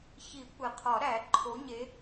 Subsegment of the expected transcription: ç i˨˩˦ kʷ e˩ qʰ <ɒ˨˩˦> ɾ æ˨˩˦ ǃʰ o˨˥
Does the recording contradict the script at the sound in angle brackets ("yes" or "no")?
no